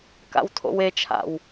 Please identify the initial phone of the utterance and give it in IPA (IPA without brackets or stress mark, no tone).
k